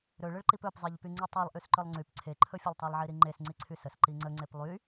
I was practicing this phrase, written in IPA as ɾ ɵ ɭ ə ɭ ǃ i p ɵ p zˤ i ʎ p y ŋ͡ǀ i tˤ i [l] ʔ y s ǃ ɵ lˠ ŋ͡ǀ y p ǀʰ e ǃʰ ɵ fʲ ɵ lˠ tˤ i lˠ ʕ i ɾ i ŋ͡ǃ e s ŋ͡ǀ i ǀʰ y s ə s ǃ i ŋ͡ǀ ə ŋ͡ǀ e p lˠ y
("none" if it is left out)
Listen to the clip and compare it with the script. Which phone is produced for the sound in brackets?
lˠ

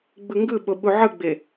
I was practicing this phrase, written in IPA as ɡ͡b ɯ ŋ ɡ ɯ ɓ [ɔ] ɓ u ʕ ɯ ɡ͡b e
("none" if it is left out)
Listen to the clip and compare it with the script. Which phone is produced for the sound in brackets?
o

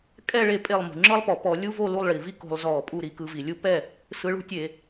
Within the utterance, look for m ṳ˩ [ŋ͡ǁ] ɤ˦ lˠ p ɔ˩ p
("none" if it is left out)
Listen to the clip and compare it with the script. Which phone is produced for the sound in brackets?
ŋ͡ǁ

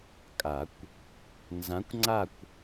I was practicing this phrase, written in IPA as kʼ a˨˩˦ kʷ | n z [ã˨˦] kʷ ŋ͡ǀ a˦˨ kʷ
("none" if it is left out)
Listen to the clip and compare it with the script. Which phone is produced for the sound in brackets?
ã˨˦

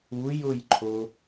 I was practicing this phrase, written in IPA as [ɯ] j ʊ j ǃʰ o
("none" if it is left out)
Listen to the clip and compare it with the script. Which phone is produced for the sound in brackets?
u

